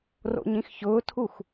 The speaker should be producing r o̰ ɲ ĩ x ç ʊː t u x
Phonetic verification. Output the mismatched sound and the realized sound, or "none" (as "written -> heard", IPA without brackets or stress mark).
t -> tʰ